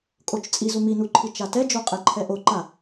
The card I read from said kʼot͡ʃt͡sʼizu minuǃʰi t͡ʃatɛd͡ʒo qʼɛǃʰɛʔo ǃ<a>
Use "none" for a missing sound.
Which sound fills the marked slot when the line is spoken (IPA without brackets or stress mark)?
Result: a